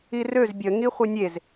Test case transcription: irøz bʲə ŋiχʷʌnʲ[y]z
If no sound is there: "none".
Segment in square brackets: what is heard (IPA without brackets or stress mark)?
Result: e